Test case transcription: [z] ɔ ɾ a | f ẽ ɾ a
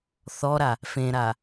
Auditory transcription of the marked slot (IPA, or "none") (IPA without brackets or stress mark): θ